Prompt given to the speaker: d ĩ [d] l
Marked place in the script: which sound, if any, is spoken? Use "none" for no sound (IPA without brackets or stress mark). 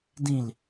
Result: none